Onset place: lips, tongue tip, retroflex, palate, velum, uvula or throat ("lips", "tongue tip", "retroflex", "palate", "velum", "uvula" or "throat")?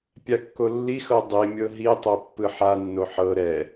lips